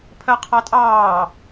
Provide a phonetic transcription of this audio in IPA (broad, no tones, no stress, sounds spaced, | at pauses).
pʰ ɜ qʰ ɑ tʼ ɑː